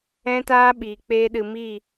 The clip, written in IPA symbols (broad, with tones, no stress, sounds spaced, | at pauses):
ɛ̃˦ t aː˦ ɓ iː˨ k͡p eː˦ ɗ ɨ˧ m iː˦˨